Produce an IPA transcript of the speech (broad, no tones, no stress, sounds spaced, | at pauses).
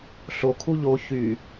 ɬ o kʰ u ʎ o ç y